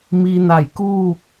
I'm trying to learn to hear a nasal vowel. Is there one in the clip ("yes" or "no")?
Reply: no